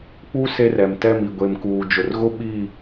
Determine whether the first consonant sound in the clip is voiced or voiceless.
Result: voiceless